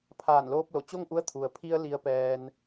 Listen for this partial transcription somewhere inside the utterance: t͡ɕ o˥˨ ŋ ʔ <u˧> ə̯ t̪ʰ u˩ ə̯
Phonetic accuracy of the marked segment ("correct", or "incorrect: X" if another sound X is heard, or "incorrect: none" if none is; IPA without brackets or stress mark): incorrect: u˧˥